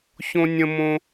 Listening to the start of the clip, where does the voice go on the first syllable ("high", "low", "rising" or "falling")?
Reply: high